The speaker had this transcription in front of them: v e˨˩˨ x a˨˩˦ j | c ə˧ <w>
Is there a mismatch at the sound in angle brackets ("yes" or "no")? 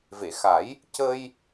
yes